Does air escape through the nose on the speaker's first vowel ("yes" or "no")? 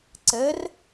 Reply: no